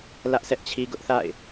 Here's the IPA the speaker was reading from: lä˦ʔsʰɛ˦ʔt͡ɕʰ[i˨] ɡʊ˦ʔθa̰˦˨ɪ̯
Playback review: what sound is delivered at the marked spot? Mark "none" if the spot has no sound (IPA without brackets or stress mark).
i˦